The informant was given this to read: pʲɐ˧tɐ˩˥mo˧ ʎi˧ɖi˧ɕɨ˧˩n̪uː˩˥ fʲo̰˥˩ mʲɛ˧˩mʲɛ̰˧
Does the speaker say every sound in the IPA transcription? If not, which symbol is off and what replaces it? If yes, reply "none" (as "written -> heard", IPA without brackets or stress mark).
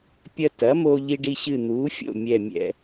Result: none